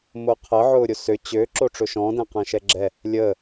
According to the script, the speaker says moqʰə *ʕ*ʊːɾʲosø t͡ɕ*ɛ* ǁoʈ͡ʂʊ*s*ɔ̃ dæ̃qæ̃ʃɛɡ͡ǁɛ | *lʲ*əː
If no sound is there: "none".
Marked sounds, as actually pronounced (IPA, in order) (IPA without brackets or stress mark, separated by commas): ʕ, ø, ʃ, lʲ